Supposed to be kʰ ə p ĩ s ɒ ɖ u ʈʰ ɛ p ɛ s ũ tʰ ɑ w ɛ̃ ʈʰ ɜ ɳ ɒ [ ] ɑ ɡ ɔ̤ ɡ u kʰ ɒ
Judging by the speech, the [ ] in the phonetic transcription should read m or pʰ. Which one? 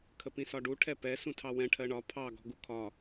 pʰ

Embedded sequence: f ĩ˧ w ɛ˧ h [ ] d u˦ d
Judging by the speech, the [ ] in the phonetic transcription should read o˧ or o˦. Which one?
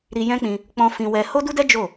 o˦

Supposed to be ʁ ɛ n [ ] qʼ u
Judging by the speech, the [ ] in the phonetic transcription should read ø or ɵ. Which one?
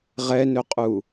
ɵ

